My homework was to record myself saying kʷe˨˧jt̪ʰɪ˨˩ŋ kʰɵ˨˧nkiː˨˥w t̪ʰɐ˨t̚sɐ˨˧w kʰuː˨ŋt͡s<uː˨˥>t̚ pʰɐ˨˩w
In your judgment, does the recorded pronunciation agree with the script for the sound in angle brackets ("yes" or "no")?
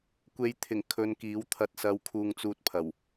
no